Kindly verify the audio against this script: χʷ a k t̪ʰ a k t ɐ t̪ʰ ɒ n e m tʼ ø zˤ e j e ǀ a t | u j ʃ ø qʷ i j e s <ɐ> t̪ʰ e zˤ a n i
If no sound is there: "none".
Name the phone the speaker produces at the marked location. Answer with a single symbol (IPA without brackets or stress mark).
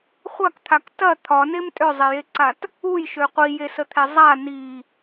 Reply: ə